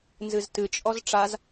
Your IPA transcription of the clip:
nzɨztɨt͡ʃʼɔz ʈ͡ʂaz

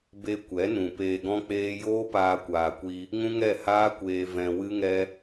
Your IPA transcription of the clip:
be˦ kʷɛ˨˦nũ˨ peː˧ɡɔ̃˦k͡peː˦ joː˦paː˧kʷaː˨kʷi˧ | ŋũ˦ŋɛ˦˨haː˦kʷeː˧ vɛ̃˧wɨ˦ŋɛ˦

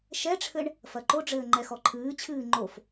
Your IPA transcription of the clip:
ʃɛʈ͡ʂʰɘɳ | fɐǃoɖ͡ʐɘː ŋ͡ǃɛxɔǃʰɨːt͡ɕʰɨː ŋ͡ǃof

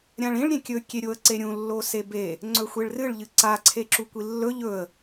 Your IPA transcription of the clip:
ɾʲãɭĩɭ ɾʲẽkʲɵ kʲeɾʲoə̯ǀeɾʲũ lːosebe | ŋ͡ǀɵxʷeɭrɨɭ ʎɨǀa ǀʰeǁukʷilːɵ ʎɵə̯

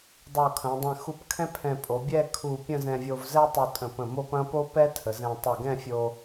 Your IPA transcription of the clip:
dˤo˧˩kʰɐ̃˩˧dˤɛ̃˧˩ xu˧p kʰɛ̃˥pʰɛ̃˧˩ pʼo˩˧bʲɛ˥˧kʰu˧˩ pʲə̃˥˧ zɛ̃˧vʲo˧vzɛ˥ tˤu˧tʼə̃˧˩pə̃˧˩ mo˥˧pɐ̃˥ po˥pɛ˥ tʰə˩˧zɛ̃˧ tˤɐ˧˩ɡɛ̃˥˧fʲo˧

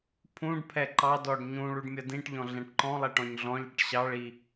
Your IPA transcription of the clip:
pʰũɖpʰɛ ǃɑdɔɖ ɲũ ɭuɖmʲʌdĩʈʎɔ̃ ɮɛ̃ʈǃɔ̃lˠɛ ʈɔ̃ɲɮɔ̃ʎɽɪʈ ɕɑɭi

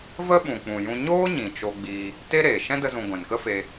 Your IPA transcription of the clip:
və˦ɓũ˨ k͡pũ˨jũ˧ ɲoː˦ ɲĩ˨t͡ʃo˧ɡ͡biː˧ | te˦ɾeː˨ ʃɛ̃˦də˧zũ˨ ɡʷɛ̃˨nkə˦fe˧

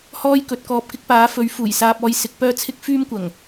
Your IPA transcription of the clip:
hɔː˥jkɵ˨˥t̚kɔː˧p̚kɪ˥k̚ paː˨˥fɵ˨˥ɥ fuː˨˩jsaː˧p̚ɔː˧j sɪ˧k̚pœː˥t͡sʰɪ˥k̚ fyː˥mkʷɐ˨˩ŋ

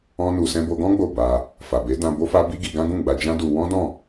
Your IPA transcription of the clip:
ɔ̃˦nu˧sɛ̃˦ bo˧ɡɔ̃˦ ɡ͡bo˦˨ba˧ | fa˨be˨˦dã˧ bo˦fa˦ bi˦ɡi˧ɡã˦ ɡũ˦˨ɡ͡ba˧d͡ʒã˦du˧ wɔ̃˦dɔ̃˦˨

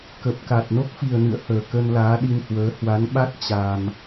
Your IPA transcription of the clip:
kə˨˩p̚ka˨˩t̚ no˦˥k̚fi˨˩ə̯nɨ̰˧˨ə̯həː˧˩ kə˧nlaː˨˦ɗi˧nhwəː˨˦ hwa˨˦nɓa˦˥t̚ t͡ɕa˧m

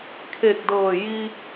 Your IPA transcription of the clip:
kʰeː˧˩k̚dɤː˧˩ ji˧

